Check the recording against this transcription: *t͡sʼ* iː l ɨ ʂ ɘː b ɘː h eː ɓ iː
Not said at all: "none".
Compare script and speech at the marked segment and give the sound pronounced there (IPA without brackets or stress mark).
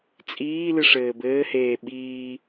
t͡sʼ